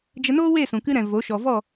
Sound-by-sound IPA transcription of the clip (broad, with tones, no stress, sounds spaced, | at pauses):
d͡ʒ ə˧ n oː˦ w e˦˨ s ũ˨ k ɨ˧ ɾ ɛ̃˨ v o˨˦ ʃ ɔ˨ v ɔ˦˨